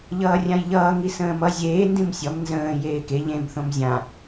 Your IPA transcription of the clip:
ʎʌːrʲãjʎʌː ŋisə̃ːmʌ zʲeː ndĩmsʲʌm nzə̃ː jeːke ʎẽm θõmzʲã

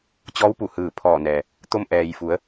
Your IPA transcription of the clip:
t͡ɕɔː˧˥wpu˧˩hɯː˧˩ pʰɔː˧˩nɛː˩ | t̪o˧mʔɛː˩jfu˩˧ə̯

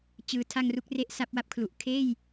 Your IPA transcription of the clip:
t͡ɕɯː˩˦tʰa˧ŋ ru˦˥k̚re˦˥ʔ sa˦˥p̚wa˥˩p̚kʰlu˨˩ʔ kʰeː˥˩j

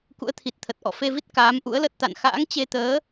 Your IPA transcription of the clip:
kṵ˧˥ə̯t̪ʰi˨˩t̚t̪ʰə˨˩t̚ ʔɔ̰˧˨fe˧vi˦˥t̚ kaː˨˦mʔṵ˧˥ə̯lə˦˥t̚t̪a̰˧˨n xa̰ː˧˥ŋt͡ɕe˧t̪əː˨˦

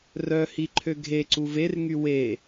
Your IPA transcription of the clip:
rœhi ǃʰøɡʱeǀu verŋy we

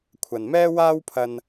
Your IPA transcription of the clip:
kʷʰɐ˨nmɛː˥waː˥wpʰɐ˧n

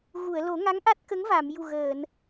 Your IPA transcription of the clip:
ɣu˨˩˨ə̯lo˨˩˦ŋa˧˥ŋʔa˦˥t̚ kə˧˥ŋva˨˩˨mju˨˩ ɣəː˨˩˨n

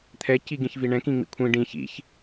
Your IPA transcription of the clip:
t̪ʰɛ ciɡĩçviɳɛ̃ kĩŋ͡mḭkʷʰĩ ɖĩ çḭç

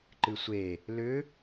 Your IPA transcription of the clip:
ǃɨsʷe | lʏ

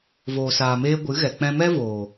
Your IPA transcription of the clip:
voː˨saː˨meː˧ ɡʷɨ˨˦ɣɛ˨ k͡pɛ̃˧mɛ˦voː˨

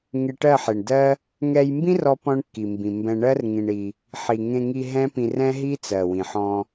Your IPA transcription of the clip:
ŋe˧ʈɜ˦˨ħe˨ɳdɜ˦ | ŋɛ˧jmbĩ˦r ɔ˦ pɔ̃˦ɳkːi˨mbĩ˨ mbɛ̃˧ɳɜ˦r ŋĩ˧ɳi˧ | ħi˨ŋẽ˧ŋi˧ ɦɛ̃˦pĩ˧rɛ̃˦ɦi˦ t͡sɜ˨wĩ˨ħɔ̃˧

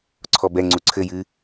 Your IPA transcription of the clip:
ǀʰɔbɛŋ͡ǀu ǀʰɘ jɨ

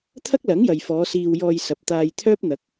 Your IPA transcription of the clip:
t̪ʰɐ˥k̚lɐ˨˥ŋjɐ˨jfɔː˨˧ siː˧wjɔː˧j sɐ˨p̚t̪aː˧jt̪ʰœː˥p̚ n̪ɐ˨˥k̚

